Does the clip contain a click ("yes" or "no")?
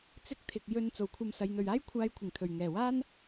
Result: no